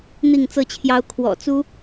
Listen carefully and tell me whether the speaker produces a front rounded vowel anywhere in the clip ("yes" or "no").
no